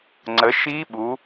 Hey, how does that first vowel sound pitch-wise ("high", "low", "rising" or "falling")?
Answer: rising